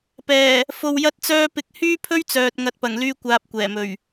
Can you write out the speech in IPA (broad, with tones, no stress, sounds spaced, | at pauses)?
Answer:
p ɛː˨˩ | f o˧ w j ɐ˥ t̚ t͡s œː˥ p ɪ˨˥ k̚ h yː˥ pʰ ɵ˥ ɥ t͡s œː˨ t̚ ŋ ɐ˨˥ t̚ p ɐ˨˩ ŋ l yː˧ kʷ aː˨ p̚ kʷ ɛː˨˩ m ɵ˨˩ ɥ